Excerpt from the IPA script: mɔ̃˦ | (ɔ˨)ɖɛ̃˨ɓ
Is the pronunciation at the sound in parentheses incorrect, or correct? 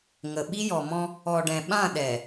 correct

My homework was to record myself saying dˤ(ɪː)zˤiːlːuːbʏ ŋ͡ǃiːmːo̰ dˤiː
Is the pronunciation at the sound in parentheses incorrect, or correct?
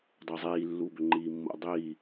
correct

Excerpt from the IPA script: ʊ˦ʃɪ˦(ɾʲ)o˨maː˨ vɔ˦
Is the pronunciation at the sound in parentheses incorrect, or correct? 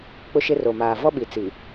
incorrect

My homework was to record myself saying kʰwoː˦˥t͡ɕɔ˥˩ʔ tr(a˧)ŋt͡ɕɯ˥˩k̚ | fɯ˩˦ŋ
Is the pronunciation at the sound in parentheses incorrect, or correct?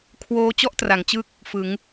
incorrect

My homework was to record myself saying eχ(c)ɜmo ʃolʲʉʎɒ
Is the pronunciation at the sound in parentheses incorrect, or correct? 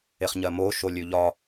incorrect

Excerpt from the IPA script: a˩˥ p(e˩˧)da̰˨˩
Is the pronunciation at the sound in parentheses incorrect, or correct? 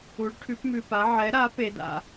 correct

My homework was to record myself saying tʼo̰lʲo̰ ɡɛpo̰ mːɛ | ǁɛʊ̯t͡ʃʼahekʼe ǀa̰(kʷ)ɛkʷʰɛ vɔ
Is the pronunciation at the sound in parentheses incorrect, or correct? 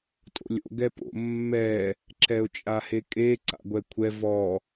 incorrect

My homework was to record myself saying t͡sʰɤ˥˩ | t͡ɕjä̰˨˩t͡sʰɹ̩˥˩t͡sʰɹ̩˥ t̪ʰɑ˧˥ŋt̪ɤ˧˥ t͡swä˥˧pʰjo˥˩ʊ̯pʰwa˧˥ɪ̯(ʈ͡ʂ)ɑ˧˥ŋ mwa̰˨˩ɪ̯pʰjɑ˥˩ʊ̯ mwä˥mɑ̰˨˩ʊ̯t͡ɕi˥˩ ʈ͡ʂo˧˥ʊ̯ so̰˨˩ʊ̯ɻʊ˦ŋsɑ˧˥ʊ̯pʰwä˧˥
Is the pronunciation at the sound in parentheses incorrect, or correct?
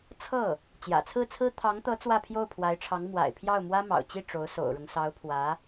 incorrect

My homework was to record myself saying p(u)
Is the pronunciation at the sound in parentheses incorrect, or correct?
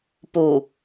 correct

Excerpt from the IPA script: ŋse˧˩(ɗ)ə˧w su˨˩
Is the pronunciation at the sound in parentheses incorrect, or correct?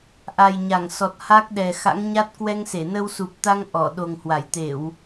incorrect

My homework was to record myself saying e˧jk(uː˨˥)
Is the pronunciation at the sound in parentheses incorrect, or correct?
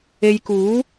correct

